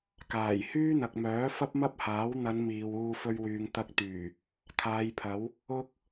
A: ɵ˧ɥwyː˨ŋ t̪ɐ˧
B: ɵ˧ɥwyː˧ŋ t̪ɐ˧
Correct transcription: A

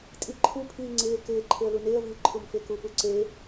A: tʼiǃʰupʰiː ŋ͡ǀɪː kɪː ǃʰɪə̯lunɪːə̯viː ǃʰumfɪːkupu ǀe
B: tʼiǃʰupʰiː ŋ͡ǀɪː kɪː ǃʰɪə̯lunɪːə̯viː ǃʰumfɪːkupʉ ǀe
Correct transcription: A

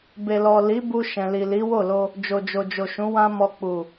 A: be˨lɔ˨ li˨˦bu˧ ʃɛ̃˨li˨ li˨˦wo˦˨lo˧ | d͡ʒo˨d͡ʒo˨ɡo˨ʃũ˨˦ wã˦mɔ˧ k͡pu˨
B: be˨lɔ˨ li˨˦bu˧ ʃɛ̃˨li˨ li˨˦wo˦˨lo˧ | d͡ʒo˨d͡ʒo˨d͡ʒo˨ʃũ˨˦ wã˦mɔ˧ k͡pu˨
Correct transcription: B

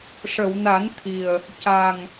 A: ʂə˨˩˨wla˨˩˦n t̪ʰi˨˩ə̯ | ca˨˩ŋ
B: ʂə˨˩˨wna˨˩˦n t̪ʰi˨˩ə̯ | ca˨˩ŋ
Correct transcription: B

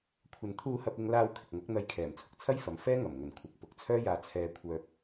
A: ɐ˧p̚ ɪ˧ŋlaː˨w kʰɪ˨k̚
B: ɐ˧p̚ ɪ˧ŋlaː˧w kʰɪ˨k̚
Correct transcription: B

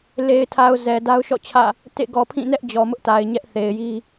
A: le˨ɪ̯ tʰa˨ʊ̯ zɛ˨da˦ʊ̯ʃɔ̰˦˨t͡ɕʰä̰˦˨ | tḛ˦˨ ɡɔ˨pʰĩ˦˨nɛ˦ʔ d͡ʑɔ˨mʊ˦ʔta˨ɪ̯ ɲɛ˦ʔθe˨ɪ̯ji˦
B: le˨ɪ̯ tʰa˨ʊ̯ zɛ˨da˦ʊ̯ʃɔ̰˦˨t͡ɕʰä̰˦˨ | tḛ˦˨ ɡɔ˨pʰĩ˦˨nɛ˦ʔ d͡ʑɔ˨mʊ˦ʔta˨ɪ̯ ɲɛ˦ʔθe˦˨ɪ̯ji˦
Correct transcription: A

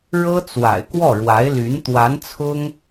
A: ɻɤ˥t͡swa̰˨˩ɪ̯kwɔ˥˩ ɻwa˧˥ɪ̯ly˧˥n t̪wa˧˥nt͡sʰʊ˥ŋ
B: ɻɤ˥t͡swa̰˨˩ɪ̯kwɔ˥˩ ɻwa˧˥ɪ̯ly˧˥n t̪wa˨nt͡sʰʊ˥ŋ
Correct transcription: A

